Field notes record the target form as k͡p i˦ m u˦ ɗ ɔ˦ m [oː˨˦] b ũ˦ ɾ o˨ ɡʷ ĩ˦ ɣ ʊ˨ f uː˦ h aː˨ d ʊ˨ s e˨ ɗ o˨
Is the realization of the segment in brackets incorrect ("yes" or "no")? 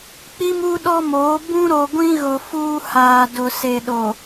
no